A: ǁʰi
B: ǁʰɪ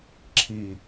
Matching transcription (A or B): A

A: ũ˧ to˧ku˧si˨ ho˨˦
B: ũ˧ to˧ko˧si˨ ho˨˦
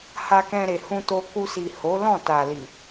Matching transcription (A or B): A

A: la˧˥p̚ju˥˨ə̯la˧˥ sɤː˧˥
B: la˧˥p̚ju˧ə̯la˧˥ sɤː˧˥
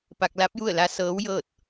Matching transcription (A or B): A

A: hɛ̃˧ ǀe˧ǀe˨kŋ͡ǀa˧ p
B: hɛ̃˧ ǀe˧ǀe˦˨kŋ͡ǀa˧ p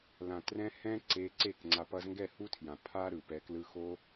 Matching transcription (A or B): B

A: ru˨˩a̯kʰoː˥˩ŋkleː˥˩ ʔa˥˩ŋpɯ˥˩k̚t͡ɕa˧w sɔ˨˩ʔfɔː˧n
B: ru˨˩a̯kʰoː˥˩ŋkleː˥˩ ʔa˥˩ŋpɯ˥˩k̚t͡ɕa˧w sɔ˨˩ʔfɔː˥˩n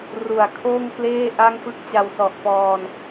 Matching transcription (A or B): A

